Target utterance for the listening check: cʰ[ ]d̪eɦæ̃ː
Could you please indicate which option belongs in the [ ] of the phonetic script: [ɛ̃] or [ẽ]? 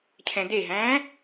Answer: ɛ̃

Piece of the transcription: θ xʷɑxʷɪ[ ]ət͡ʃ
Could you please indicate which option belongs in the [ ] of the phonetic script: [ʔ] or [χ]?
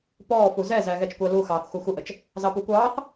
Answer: ʔ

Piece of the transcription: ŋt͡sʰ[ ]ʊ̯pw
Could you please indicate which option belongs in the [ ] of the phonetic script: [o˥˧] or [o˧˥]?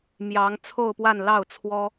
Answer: o˥˧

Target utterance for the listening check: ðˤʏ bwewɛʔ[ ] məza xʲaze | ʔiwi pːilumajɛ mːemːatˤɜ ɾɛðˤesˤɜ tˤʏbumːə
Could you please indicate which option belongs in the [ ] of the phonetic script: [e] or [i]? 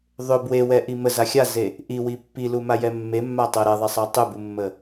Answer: i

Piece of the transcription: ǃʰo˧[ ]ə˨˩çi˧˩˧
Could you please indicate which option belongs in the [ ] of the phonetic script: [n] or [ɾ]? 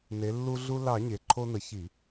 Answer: n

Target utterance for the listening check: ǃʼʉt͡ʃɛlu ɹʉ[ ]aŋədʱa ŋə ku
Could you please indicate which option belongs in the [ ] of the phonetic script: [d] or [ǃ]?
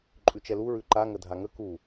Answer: ǃ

